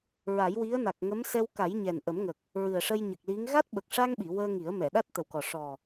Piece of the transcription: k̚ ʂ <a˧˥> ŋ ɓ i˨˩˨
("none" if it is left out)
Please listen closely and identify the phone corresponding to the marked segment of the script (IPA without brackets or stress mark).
a˧